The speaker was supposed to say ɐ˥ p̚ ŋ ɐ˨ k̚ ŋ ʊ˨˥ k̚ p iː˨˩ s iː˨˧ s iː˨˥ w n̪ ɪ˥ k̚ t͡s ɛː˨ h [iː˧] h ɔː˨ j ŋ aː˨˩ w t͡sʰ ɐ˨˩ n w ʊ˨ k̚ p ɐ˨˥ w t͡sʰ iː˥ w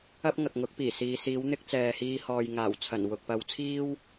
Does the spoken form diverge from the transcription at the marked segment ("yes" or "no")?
no